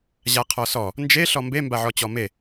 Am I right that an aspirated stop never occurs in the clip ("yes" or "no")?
no